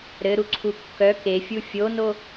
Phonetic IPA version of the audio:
ɾ ɘ ɾ u ǀʰ u kː œ k e fʲ u fʲ o n o

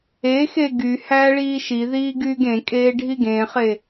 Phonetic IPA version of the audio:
e x e ɡ y h æː ɭ iː ʃ i ð iː ɡ yː ɡ ẽ kʼ eː ɖʱ i ɡ ẽ χ e

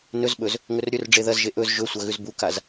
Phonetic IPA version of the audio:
n ɵ z ɓ ɵ z | ŋ ɵ r ɾʲ ɵ r ɖ͡ʐ e ð ɐ z ʒ e ʔ ɵ z ʒ ɵ sʷ ɐ ɣ ʉ z b u k a z

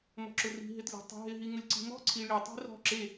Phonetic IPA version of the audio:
m ɔ̤ ǁ ʊ r i̤ ɦ ɪ t lʲ ɔ̤ tˤ ṳ ɦ ɪ ɦ i ŋ ʊ lʲ ǀ i̤ m ɔ̤ ǀʰ i ɭ i tˤ i̤ r ɔ̤ ǁ e

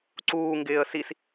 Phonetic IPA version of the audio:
ǀ uː ŋ ɡ ɪː ə̯ s i s

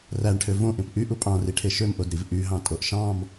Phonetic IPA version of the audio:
r æ ɳ ʈʰ ø v õ ʔ ẽ p ʔ y ʔ u pʼ ɑ̃ r i ʈʰ e ʃ ø m ʔ o d ɾ i v ʔ y ɦ ɑ̃ tʼ o ʔ ʃ ɑ̃ m

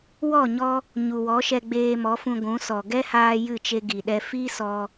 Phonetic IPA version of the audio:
w ɔ˦˨ ɲ ɔ˧ | ɲ u˨ w ɔ˨˦ ʃ ɛ˧ ɡ͡b eː˧ m ɔ˨˦ f ũ˧ ɡʷ ũ˨˦ s ɔ˨ ɡ ɛ˦ h aː˧ j ɨ˦˨ t͡ʃ e˧ ɡ i˨ ɗ ɛ˧ f i˦ s ɔ˧

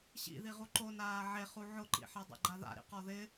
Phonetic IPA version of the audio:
ɕ ḭ ð i ʁ u ǃ o n aː ʕ e χ u ʕ ʊ ǃ ḭ ħ a dˤ a̰ ɡ͡ǃ a ð a̰ ɾ ḭ q ɔ ð ɪ

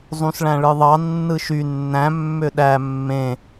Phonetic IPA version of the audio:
zˤ ũ s ɭ æ̃ ɭ ɯ ðˤ ɑ nː ɯ ʃ y nː æ̃ mː ø ɗ æ mː ẽ

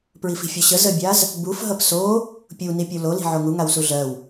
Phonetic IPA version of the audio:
p ɹ i f i̤ fʲ o ɕ ə z ə bʲ a z | b u f ɦ ʌ p s o | pʲ u n i pʲ u l o l i̤ ʕ o ŋ u ŋ a w s u ɮ ɜ w

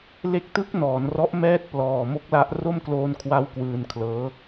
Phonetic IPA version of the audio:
l e˦˥ k̚ t ɯ˦˥ k̚ n ɔː˩˦ n r ɔ˦˥ ʔ m ɛː˥˩ t̚ p l ɔː˨˩ m o˦˥ k̚ l a˦˥ ʔ r o˥˩ m k l oː˧ n kʰ w a˦˥ w k w ɯː˧ n kʰ l ɤː˦˥

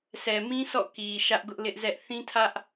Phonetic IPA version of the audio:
s ɛ˨ m ĩ˦ s ɔ̰˦˨ k i˨ ʃ ä˦ ʔ ɡ ʊ˦ ʔ l ɪ˦ ʔ z ɛ˦ ʔ θ ĩ˦ tʰ ä˦ ʔ

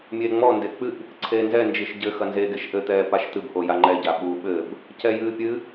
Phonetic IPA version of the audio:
mʲ eː ŋ͡m ɔ n d e k͡p ɨ ʔ | ǀʰ eː n z ɛ n d͡ʒ i ʃ ɟ ɘ x ɐ n z e ɡ e ʃ ʔ ɘ t̪ ɛː p a ʃ t̪ ɨ b ʔ o j a ŋ͡ǃ ɛ ɟ a ɓ u ɓ ɘ b | c ɛ j ɨː pʲ ɨ

